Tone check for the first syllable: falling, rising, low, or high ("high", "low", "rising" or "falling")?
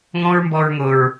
high